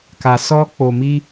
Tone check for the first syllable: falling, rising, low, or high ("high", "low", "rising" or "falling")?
low